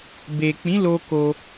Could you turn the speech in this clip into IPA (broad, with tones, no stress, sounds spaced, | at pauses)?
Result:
b e˨ k͡p ĩ˨˦ l o˧ k o˧